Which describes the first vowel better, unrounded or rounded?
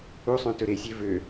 rounded